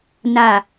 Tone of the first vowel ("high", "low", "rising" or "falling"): low